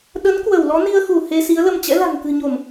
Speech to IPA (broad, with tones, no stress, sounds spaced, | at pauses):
ɗ ə˨˦ n k w ə˧˩ w l ɔ˨˦ n i˧ ə̯ x u˧˩ h e˧ s i˨˦ ə̯ l ə˧ m t͡ɕ ɛ̰˧˥ l a̤˨˩ ŋ k ɨ̤˨˩ ɲ o˧˩˨ m